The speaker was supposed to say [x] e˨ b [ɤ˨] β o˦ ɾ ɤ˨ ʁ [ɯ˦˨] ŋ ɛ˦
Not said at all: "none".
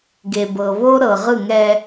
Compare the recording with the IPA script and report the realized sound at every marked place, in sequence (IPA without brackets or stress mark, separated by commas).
ɡ, ɤ˨, ɯ˦˨